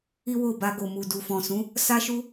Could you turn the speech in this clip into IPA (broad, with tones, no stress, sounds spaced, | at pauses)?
i˦ w o˦˨ b a˧ ɡ o˨ m u˨ d u˨ f ɔ̃˨ s ũ˨˦ | s a˦ ʃ u˦